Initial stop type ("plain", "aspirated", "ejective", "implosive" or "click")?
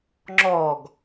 click